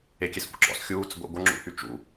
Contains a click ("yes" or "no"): yes